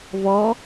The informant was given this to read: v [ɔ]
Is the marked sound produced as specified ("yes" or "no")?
yes